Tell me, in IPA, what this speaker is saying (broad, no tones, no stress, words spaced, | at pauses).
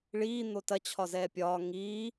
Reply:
ɭiː n̪otɐ t͡ɕʰɒzɛːpʲɒː ŋiː